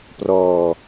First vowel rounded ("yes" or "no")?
yes